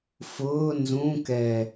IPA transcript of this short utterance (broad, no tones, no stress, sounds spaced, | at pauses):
f ʊː n z ũ k ɛ